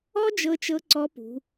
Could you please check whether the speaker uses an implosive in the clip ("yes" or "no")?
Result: no